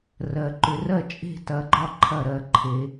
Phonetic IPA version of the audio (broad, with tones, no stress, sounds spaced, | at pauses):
r ɜ˨ ǃ ʏ˨˦ r ɜ˥˩ t͡ʃʼ e̤˥˩ t ɐ˨˦ ɡ͡ǃ ɒ˥˩ ǃʰ ɐ˥˩ ɾ ɜ˥˩ ǃʰ e˨˦